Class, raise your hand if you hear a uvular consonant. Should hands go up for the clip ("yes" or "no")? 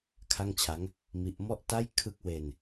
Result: no